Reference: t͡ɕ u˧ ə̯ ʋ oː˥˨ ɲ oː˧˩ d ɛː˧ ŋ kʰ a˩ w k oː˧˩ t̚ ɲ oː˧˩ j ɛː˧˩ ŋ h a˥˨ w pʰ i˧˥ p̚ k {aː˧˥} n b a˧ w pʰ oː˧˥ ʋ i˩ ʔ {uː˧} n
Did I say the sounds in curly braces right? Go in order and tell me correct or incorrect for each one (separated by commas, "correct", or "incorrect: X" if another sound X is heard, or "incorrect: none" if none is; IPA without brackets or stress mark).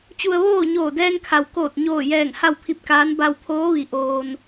correct, incorrect: oː˧